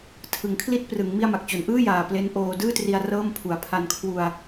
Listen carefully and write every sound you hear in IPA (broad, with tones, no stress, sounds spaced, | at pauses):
tʰ ɯ˩˦ ŋ kʰ l i˦˥ t̚ p r ɯ˩˦ ŋ m i˥˩ a̯ m a˨˩ k̚ t͡ɕ o˨˩ n ʔ ɯː˥˩ j aː˨˩ p l e˦˥ n ʔ oː˧ d ɯː˥˩ t r i˧ a̯ r ɤː˥˩ m pʰ u˨˩ a̯ pʰ a˧ n kʰ w u˧ a̯